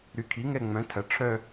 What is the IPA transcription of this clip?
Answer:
ɾy˩˥kʰi˩˥ŋɛ˦˨ ŋ͡mœ̃˩˥ tʰɐ˩˥ ʈ͡ʂʰœ˦˨

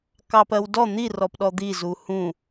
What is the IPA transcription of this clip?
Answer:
kɑpɜwdɔ n̪i rɔpɗɔd̪i zuhũ

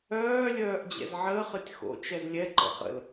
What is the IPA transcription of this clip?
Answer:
œːlʲœːʔ d͡ʑɛ̰zʕəːχɨtʲ xo̰ t͡ʃɛzlʲɛǃə̰ χə̰l

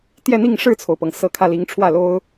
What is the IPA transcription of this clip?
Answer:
t̪jɛ˥˧n̪i˥˧ŋ ʂɻ̩˥˩t͡sʰo˩ʊ̯pɤ˩ŋ sɤ˧˥kʰä˧li˧˥ŋʈ͡ʂʰwä˥˩ lo˥ʊ̯

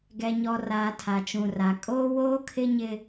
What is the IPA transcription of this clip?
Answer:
ɡɛ˨ɲɔ˨raː˨ tʰa˨t͡ʃũ˨ra˨ kʼoː˦ woː˦kʰɪ˦ɲɪ˦

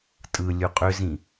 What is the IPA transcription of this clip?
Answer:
tʼɯ lʲuqʼʏzĩ

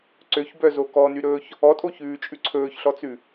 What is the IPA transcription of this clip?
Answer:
ǀøçbœzo kɔnyɾɵːç | ɔtʼoçʉːt͡ʃʼʉ ǀʰɵːçɬɔt͡sʉ

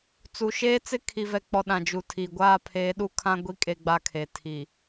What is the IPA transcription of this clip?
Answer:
t͡su˨ʃeː˦t͡sɪ˦ kʰi˨vɛ˨k͡pɔ˨ ɗã˨d͡ʒu˨tʰi˨ ɡʷaː˦˨pʰeː˨˦ɗu˦ kʰã˦ɡʷi˦ kʼe˦ɡ͡ba˦kʰe˨ tʰi˨

